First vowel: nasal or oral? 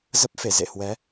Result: oral